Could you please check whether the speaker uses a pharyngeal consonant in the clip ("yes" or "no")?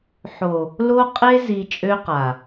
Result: yes